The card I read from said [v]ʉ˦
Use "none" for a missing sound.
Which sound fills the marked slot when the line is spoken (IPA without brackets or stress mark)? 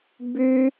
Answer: b